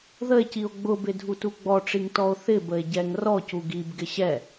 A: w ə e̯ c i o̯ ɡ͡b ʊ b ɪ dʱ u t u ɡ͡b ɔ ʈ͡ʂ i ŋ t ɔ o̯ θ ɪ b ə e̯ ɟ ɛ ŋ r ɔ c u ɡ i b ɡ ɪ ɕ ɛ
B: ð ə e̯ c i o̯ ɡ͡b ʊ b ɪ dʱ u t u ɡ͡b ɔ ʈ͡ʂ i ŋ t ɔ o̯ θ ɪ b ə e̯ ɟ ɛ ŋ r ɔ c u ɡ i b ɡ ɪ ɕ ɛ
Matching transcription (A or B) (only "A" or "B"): B